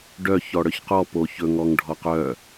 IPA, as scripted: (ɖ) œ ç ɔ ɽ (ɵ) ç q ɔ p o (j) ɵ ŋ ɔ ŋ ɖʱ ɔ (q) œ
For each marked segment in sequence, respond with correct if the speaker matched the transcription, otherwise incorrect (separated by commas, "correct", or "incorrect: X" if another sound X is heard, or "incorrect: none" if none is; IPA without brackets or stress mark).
correct, incorrect: œ, incorrect: ç, correct